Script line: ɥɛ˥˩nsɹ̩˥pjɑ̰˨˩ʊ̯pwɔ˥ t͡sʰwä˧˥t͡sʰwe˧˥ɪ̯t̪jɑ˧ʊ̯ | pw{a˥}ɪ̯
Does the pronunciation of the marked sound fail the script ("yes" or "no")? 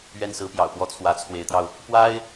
no